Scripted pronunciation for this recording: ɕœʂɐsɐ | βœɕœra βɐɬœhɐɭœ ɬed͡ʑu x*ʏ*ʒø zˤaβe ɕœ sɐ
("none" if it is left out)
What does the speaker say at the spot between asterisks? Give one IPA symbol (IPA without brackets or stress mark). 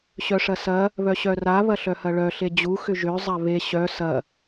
ʏ